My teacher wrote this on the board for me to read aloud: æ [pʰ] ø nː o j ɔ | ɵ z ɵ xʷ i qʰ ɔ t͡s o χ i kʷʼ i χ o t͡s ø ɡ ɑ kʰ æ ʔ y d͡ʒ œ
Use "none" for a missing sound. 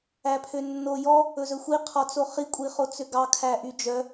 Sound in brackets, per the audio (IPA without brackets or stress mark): pʰ